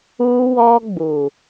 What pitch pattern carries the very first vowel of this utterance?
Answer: high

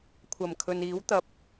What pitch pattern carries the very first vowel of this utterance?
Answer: low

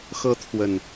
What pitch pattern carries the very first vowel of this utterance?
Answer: high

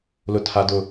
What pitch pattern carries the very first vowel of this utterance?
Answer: high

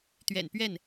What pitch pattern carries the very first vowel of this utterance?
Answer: low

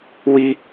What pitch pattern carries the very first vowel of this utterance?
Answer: high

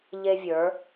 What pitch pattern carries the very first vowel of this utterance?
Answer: high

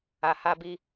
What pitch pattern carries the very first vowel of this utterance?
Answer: low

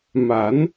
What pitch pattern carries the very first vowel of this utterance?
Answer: rising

